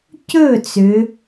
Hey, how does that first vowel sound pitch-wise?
falling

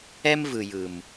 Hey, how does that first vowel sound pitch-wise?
high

